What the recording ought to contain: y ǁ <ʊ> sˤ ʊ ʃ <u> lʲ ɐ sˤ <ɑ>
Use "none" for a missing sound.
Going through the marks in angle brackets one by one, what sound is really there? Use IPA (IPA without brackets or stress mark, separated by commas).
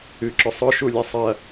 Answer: ʊ, u, ɐ